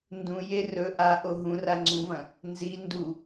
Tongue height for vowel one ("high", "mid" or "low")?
high